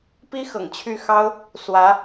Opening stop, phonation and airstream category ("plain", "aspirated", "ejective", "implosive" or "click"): plain